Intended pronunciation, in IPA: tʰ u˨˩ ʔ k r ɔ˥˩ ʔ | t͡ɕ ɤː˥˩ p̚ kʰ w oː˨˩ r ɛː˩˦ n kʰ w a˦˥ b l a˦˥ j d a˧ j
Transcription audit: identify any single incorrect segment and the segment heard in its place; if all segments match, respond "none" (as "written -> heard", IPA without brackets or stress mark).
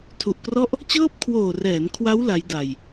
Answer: b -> w